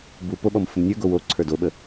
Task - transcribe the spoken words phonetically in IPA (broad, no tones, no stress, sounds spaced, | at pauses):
b u p o ɓ ɔ m f ʊ m nʲ ə˞ ɡ o w o ǀʰ ə˞ d o ɓ ə